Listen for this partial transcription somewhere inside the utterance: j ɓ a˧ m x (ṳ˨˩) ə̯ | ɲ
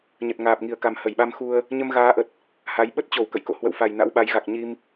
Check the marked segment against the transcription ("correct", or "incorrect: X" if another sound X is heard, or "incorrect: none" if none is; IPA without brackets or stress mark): incorrect: u˧